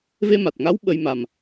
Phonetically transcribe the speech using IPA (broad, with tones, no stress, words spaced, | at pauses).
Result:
ve˧ma˨˩t̚ŋa˧˥w ɓə˧j ma˨˩m